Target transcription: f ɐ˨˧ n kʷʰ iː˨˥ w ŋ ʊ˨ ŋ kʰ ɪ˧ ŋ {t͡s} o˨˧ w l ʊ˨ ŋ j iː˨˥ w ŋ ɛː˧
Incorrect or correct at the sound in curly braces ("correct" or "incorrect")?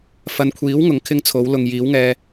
incorrect